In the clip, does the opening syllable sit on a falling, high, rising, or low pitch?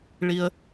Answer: low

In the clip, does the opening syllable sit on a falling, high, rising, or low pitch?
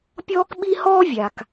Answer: high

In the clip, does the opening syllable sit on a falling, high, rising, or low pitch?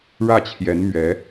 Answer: falling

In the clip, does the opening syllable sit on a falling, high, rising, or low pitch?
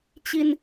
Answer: low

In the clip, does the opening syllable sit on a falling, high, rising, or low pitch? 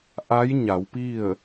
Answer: rising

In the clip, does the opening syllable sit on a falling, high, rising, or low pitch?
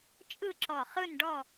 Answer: falling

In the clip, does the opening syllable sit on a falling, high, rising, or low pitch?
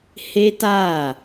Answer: high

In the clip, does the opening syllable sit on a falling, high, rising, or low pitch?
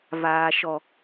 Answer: low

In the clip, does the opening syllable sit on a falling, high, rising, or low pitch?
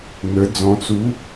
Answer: rising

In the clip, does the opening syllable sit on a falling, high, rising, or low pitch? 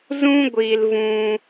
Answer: high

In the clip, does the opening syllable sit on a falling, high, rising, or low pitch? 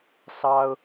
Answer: high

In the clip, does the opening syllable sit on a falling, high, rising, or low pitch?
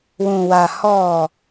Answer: low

